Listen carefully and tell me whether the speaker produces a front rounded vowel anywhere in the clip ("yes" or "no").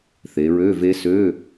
yes